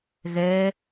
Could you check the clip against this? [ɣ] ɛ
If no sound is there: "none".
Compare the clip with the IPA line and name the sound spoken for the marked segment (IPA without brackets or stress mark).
ɣ